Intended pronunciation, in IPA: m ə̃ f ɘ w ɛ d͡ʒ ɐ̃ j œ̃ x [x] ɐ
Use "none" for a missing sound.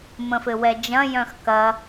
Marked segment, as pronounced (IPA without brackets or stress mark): k